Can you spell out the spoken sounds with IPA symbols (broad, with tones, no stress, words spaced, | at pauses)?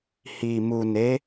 hi˨mu˨ne˨˦